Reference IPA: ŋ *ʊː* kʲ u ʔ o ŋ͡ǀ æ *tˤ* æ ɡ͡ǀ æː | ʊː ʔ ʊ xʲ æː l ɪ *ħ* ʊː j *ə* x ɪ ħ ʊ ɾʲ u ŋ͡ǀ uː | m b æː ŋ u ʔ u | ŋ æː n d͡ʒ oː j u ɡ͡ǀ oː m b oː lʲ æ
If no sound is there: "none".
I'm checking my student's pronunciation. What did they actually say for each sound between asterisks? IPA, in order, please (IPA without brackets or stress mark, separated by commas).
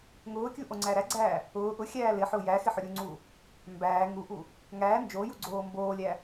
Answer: ʊː, ɾ, ħ, æ